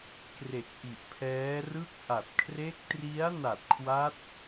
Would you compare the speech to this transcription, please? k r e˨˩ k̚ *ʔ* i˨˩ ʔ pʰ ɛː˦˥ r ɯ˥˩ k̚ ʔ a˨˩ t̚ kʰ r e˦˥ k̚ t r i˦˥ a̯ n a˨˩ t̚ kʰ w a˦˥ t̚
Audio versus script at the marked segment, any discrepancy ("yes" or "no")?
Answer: no